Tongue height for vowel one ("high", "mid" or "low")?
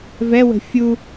mid